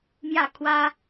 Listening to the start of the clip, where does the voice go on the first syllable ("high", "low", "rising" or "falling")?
falling